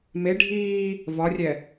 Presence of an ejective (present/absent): absent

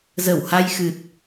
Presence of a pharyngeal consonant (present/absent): absent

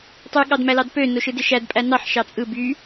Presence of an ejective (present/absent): present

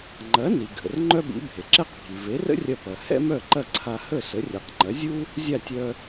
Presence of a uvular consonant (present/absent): present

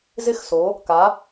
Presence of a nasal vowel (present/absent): absent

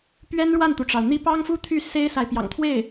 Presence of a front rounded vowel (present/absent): present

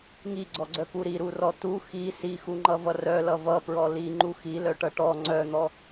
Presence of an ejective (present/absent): absent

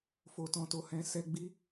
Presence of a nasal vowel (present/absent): present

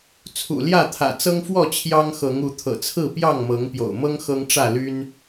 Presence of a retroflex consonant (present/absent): present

